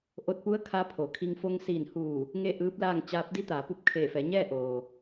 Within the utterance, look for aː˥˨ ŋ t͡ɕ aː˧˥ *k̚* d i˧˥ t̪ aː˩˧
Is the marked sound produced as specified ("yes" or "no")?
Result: no